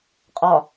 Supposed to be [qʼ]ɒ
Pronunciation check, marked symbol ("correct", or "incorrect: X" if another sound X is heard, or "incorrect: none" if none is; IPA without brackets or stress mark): correct